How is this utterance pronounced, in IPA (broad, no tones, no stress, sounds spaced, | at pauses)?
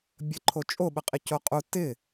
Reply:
bʲ ə ǃʰ o t͡ʃʼ o ɓ ə qʼ ɪ c o qʼ u t ɪ